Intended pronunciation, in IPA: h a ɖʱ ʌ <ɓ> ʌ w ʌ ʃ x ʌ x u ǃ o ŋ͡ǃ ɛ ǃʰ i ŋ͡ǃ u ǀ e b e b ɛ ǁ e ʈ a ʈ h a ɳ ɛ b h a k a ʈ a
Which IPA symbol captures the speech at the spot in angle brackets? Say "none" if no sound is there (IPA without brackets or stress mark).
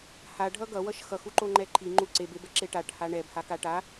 ɡ